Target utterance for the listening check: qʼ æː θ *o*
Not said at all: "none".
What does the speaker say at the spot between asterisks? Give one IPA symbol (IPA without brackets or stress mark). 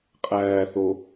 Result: o